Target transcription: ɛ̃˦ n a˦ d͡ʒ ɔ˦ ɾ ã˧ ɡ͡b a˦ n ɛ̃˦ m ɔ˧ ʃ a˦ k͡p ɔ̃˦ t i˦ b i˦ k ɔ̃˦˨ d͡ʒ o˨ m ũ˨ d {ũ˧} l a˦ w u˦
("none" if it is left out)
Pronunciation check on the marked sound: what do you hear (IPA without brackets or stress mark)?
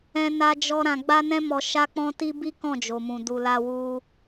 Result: u˧